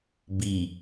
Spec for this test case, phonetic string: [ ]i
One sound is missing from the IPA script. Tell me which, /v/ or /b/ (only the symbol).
b